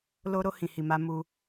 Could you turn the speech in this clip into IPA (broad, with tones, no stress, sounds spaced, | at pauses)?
l o˧ ɾ o˧ h ĩ˨ h i˨ m a˧ m u˧